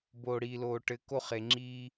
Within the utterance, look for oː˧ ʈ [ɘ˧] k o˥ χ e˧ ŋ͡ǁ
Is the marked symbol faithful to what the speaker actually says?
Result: yes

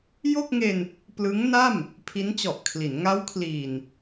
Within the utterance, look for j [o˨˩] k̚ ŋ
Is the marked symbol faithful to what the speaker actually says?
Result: no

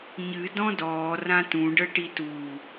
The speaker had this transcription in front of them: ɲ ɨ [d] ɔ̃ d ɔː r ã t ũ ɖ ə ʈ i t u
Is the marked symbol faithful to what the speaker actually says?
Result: yes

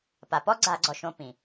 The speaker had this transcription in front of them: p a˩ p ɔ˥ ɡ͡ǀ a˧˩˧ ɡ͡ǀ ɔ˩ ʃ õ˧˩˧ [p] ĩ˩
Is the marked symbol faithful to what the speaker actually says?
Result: yes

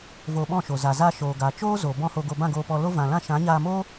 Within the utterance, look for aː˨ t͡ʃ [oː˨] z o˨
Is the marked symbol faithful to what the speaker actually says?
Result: no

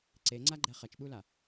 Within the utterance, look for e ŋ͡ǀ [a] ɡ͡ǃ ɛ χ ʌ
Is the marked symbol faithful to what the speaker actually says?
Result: yes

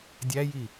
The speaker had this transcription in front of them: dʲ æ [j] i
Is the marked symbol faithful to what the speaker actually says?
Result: yes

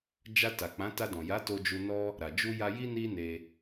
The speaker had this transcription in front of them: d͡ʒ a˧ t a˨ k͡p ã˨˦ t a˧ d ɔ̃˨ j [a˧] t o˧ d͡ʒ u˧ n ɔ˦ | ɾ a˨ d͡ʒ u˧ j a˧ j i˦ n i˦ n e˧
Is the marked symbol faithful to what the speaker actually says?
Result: no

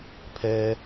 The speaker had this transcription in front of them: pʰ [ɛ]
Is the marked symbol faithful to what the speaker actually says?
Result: no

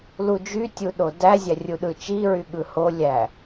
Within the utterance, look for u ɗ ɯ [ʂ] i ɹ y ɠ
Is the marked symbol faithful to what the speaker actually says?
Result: no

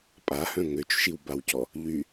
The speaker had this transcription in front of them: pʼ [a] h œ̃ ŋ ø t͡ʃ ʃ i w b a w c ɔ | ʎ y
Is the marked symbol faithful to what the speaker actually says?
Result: yes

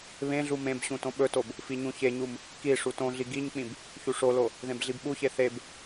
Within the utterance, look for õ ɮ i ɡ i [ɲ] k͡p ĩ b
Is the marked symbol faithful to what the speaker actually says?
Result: yes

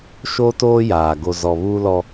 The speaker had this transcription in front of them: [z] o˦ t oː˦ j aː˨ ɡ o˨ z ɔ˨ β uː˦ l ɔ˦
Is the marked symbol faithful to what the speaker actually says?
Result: no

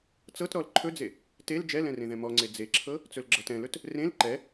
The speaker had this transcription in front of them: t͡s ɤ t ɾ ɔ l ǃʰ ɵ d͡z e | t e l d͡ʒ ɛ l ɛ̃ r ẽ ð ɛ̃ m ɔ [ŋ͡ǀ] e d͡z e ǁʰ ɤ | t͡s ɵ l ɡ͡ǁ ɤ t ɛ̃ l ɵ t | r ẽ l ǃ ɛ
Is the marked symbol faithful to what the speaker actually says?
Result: yes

